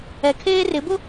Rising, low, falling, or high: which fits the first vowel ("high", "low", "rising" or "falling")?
low